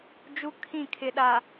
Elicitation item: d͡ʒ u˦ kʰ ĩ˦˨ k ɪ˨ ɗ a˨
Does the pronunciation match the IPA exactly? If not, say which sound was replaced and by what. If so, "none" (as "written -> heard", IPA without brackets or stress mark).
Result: k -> kʰ